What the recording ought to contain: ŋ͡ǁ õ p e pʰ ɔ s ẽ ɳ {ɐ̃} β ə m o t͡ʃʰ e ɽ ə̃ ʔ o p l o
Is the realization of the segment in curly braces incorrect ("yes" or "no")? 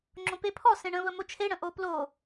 yes